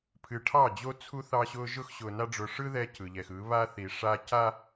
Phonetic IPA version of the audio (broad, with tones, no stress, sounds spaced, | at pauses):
pʰ ɨ˨ ʈʰ ɑ˦˨ d͡ʑ o˦ t͡sʰ u˦ θ ɑ˦ ɕ ʊː˦ ʒ ʊ˦ x ɕ ʊː˨ n a˦ ɖ͡ʐ ʊ˨ ʂ ɯ˦ ð ɛ˦ c ɯ˨ ʎ ɛ˨ x ɯ˨˦ β a˦ θ i˨ ʂ a˦ c a˦